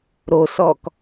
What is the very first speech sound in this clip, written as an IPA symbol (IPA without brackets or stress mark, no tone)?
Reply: ɾ